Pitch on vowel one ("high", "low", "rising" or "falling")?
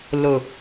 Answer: low